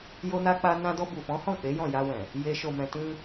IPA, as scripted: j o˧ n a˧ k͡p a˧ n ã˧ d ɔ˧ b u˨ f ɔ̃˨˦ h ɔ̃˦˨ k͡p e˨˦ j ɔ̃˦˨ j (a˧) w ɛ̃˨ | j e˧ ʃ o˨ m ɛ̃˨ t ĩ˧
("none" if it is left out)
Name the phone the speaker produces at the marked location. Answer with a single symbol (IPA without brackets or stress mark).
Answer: a˧